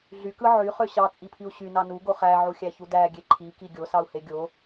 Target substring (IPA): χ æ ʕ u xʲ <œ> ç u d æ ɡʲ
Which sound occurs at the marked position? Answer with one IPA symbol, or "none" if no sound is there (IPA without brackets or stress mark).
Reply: æ